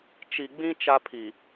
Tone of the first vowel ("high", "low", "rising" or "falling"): low